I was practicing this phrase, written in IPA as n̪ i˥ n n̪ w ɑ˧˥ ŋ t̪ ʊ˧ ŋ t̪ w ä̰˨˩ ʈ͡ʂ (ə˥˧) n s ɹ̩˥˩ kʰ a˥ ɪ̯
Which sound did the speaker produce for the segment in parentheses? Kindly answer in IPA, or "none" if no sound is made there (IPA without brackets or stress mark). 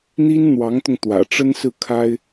ə˥